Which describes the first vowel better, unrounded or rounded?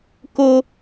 rounded